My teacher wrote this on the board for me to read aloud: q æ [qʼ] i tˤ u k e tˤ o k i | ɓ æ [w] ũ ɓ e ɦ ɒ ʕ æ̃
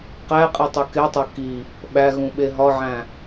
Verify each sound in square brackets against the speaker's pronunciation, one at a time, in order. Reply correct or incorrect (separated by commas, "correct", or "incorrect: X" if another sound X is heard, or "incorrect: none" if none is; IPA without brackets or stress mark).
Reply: correct, incorrect: ɣ